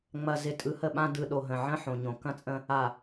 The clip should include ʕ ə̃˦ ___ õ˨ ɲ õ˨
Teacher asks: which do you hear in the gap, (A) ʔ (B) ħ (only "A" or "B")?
B